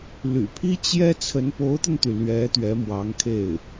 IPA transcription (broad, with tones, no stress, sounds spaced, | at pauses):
l y̰˨˩ pʰ i˥ t͡ɕ j ɛ˥ t͡sʰ ə˧˥ n p o˧˥ ʊ̯ t̪ ə˧ n t̪ y˩ l ɥ ɛ˧˥ t̪ ɥ ɛ˧˥ m w ɑ˧˥ ŋ kʰ e˥˩ ɪ̯